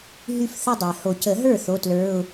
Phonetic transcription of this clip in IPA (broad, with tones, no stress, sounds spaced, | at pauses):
ɦ y˥˩ f θ ə˥˧ dˤ ɛ˩ h o˨˩˦ c ə˨˩˦ ɦ ə˞˥˩ θ o˧˥˧ t l ə˞˧˥˧ ʊ̯